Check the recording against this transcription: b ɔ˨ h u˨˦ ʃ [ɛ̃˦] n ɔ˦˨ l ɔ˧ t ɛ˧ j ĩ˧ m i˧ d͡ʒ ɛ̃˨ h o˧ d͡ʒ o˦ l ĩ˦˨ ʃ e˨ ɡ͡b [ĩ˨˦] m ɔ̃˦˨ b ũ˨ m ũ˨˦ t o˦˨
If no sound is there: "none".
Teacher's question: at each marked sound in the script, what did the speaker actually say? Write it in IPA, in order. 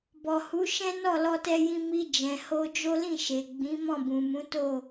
ɛ̃˦, ĩ˨˦

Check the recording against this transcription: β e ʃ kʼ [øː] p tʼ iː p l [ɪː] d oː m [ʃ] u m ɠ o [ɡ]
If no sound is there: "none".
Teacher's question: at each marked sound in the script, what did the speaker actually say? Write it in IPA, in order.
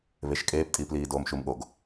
eː, iː, ʃ, ɡ

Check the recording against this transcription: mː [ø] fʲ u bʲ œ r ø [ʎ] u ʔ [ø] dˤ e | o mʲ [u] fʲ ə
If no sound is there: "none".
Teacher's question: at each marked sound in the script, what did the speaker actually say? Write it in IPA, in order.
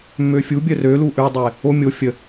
ø, l, ø, o

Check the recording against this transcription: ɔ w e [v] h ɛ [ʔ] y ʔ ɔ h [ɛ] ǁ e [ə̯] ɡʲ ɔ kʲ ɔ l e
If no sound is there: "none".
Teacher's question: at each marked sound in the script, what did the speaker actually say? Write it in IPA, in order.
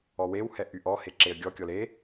w, ʔ, e, ə̯

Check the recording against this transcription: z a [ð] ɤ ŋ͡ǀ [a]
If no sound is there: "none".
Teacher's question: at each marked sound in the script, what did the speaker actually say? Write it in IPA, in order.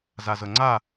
z, a

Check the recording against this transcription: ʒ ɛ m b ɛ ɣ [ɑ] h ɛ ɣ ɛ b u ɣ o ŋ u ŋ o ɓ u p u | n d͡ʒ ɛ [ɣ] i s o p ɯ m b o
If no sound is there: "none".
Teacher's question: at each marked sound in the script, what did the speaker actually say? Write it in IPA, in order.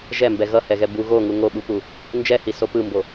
ʌ, h

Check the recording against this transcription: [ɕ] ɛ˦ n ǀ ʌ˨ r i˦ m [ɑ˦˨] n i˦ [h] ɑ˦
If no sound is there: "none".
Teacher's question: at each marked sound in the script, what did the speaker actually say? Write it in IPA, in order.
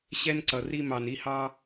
ɕ, ɑ˨, h

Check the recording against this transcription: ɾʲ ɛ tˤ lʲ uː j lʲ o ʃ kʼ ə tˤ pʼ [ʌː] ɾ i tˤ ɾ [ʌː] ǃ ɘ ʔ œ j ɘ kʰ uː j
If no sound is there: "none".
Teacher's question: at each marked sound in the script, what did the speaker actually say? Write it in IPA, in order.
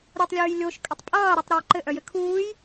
ʌː, ʌː

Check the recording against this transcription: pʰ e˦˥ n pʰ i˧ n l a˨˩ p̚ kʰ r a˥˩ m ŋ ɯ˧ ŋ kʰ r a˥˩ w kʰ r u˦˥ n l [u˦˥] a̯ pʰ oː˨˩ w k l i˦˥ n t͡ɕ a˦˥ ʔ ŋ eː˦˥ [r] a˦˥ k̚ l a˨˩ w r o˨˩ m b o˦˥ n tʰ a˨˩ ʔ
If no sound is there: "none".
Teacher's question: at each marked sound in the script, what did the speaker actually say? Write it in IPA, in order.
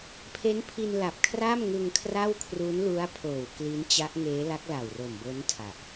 u˦˥, l

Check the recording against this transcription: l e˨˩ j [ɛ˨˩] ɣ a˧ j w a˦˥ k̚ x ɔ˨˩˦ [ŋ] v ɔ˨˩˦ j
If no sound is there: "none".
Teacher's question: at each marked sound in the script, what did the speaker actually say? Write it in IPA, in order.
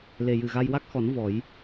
ɨ˨˩, n

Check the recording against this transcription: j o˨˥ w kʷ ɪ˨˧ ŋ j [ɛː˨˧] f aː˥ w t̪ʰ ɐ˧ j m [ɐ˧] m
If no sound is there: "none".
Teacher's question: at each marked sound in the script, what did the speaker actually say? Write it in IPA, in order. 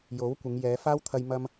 ɛː˨˧, ɐ˧

